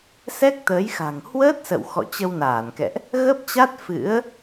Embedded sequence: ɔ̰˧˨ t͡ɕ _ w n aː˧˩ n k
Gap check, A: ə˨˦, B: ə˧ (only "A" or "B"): B